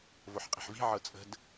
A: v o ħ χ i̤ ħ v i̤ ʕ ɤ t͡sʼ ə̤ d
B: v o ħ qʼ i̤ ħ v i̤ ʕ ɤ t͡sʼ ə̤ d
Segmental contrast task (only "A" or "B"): B